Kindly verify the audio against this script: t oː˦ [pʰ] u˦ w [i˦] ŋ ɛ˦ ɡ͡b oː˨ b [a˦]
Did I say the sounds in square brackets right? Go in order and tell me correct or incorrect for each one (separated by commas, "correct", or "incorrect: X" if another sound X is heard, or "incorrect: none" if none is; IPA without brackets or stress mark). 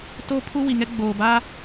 correct, incorrect: i˨, correct